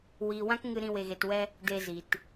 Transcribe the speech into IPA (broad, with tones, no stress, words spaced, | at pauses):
wiː˧wã˦k ŋɨ˦ɾĩ˦ we˧ɣe˧twɛ˦ | de˧zi˨t